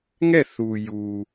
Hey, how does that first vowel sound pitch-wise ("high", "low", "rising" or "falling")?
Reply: falling